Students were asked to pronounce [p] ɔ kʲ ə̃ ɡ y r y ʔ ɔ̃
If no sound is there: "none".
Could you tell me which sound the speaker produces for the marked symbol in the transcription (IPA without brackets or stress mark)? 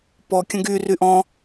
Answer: p